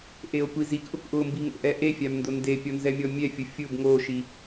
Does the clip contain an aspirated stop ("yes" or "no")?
no